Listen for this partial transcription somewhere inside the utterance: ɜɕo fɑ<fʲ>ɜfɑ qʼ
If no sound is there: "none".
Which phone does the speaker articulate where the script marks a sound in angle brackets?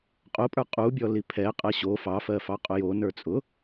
f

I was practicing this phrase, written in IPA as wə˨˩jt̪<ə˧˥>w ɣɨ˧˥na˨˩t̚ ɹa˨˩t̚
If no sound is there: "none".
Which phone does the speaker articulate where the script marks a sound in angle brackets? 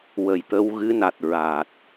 ə˧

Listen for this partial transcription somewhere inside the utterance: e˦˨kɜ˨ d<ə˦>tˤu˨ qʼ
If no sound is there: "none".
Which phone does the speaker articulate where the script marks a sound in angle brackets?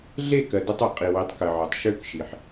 ə˦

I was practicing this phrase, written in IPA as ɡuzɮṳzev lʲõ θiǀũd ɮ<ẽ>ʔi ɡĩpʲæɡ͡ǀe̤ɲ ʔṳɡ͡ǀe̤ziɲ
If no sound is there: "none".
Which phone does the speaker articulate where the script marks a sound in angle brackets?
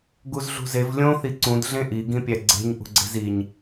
ẽ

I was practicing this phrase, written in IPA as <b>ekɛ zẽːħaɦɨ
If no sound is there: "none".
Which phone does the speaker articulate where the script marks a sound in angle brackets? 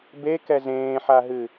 b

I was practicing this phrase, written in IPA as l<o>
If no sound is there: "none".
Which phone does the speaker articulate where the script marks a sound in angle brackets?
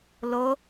o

